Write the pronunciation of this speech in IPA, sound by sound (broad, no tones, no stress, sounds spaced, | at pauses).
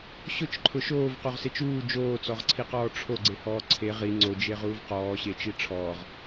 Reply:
ɕ ʊ t͡ʃ ǃʰ ʊ ʃ oː v q o ʁ s e t͡ʃ uː d͡ʒ oː t͡s ɔ ʁ ǀʰ i q ɔː ʈ͡ʂʰ o ɡ͡ǀ e h ɔː ǀʰ e ʁ i ŋ͡ǀ o d͡ʒ e ʁ uː v q ɔː ɕ e t͡ʃ i ʈ͡ʂʰ ɔː ʁ